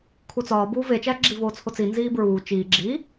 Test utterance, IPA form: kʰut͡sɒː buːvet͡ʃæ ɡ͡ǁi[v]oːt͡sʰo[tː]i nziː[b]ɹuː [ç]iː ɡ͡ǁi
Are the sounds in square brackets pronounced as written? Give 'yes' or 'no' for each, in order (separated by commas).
yes, no, yes, no